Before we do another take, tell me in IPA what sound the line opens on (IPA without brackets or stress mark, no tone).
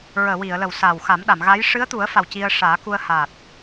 ɹ